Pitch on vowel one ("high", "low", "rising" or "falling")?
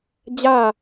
falling